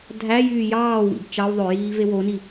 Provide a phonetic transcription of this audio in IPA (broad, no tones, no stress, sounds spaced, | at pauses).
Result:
dʱ æ j yː j ɑː w ḭ b t͡ʃ ɑ w ðˤ ø j iː v e w o n i